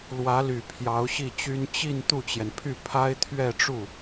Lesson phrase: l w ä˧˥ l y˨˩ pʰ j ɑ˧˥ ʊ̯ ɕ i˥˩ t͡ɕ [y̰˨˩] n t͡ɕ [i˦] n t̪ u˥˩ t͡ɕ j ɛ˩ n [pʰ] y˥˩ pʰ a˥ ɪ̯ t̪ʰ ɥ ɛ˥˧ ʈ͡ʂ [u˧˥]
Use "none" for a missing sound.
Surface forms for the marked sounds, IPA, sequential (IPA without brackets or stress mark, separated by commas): y˥, i˥˧, pʰ, u˥˩